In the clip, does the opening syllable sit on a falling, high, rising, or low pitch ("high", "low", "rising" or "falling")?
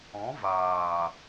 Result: rising